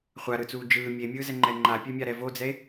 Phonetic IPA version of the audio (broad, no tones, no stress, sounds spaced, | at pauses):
χʷ a ɾ ɯ t͡s uː d͡ʒ ɯː mʲ e mʲ ɯː z ɛ ŋ͡ǃ ɛ ŋ͡ǃ a pʲ ɛ mʲ a ɾ ɛ v o d͡z ɛ e̯